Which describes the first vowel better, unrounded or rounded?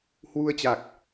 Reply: rounded